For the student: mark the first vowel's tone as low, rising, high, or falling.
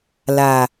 low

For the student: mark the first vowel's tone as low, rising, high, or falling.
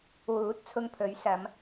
rising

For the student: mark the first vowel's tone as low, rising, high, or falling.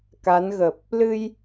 rising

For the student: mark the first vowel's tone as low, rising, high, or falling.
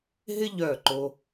high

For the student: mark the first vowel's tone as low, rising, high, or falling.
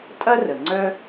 high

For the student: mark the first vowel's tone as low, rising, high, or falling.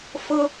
high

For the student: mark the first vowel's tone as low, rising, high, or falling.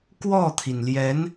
falling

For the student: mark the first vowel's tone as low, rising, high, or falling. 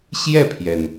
falling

